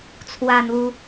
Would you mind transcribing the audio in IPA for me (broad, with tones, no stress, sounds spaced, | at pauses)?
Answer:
t͡sʰ w a˧ n̪ u˧